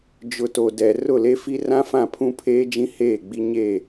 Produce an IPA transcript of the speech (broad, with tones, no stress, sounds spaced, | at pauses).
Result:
d͡ʒ ʊ˨ t o˨ d ɛ˨ r ʊ˦˨ l e˦ f i˦ r ã˦ f ã˦˨ pʰ ũ˦ pʰ eː˦ d͡ʒ ĩ˦ h eː˦˨ ɡ͡b i˦ ɲ e˦˨